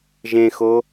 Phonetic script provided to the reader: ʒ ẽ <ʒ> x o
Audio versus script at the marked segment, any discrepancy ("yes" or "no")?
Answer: yes